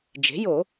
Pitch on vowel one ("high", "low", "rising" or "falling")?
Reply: rising